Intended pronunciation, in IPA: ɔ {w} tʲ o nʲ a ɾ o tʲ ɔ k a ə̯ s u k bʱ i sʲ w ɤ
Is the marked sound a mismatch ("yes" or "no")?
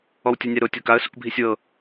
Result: no